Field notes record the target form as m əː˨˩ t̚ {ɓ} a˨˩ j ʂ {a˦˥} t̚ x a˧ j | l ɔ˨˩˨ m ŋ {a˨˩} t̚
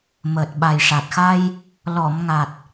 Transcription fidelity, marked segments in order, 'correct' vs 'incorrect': correct, incorrect, correct

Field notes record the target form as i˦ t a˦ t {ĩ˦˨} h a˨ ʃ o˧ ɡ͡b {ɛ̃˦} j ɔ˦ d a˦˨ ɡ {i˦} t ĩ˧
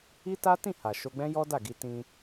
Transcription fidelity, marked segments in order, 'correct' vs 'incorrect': correct, correct, incorrect

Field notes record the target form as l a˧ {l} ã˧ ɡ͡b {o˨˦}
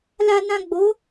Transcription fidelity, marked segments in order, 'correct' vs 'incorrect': incorrect, correct

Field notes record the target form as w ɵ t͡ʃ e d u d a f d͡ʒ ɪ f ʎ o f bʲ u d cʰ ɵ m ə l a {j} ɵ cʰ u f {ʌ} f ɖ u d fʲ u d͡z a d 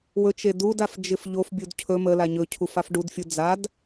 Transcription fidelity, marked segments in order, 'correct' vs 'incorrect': incorrect, incorrect

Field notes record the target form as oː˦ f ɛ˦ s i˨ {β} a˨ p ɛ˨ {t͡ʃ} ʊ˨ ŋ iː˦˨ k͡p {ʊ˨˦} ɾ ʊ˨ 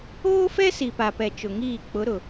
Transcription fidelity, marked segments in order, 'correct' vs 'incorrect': incorrect, correct, correct

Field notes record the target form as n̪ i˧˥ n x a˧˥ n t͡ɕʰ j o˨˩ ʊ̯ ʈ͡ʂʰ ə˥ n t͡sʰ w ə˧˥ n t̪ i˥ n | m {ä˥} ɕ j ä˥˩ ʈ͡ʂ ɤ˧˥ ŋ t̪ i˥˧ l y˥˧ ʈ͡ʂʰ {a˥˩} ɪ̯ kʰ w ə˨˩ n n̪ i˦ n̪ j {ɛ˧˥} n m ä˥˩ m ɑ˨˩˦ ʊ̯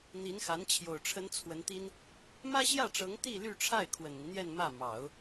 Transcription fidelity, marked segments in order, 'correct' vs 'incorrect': correct, correct, incorrect

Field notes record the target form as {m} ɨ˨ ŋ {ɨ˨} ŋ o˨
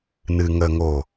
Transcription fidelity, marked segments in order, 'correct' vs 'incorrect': incorrect, incorrect

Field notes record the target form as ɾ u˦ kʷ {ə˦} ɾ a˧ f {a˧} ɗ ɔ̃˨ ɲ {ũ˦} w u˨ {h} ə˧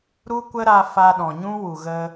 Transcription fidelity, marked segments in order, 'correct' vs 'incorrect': correct, correct, correct, incorrect

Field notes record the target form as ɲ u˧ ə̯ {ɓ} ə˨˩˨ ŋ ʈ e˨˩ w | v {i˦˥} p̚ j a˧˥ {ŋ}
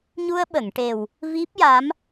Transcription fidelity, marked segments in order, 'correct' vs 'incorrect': correct, correct, incorrect

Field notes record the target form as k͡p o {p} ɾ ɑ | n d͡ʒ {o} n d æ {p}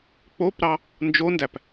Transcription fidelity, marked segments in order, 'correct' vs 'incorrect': correct, correct, correct

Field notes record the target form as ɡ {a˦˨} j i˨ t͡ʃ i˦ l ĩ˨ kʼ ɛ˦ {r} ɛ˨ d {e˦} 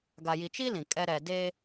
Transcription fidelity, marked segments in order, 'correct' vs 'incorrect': incorrect, incorrect, correct

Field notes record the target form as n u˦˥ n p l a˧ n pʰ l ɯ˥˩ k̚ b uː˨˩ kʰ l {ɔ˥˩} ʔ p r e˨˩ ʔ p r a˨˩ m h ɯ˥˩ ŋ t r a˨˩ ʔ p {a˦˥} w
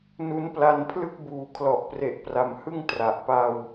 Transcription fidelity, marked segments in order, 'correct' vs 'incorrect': incorrect, incorrect

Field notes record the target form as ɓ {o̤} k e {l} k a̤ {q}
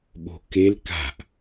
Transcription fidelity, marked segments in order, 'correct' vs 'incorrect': correct, correct, incorrect

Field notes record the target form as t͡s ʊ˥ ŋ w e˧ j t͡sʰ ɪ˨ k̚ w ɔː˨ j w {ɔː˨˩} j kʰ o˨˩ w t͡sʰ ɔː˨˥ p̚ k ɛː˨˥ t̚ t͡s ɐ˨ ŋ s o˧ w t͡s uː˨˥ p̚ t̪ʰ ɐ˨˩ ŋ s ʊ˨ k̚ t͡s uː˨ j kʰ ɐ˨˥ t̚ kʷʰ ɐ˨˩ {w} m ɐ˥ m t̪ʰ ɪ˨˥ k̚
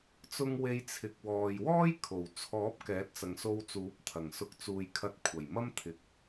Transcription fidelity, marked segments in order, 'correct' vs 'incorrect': incorrect, incorrect

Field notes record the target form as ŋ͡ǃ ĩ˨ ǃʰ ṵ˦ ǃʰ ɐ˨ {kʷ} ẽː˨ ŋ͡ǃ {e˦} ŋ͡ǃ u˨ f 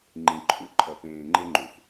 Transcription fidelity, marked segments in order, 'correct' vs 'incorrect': incorrect, correct

